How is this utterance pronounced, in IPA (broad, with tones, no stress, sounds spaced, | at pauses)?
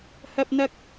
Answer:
h ɐ˥ p̚ n̪ ɐ˥ k̚